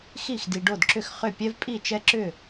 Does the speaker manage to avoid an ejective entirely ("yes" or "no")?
no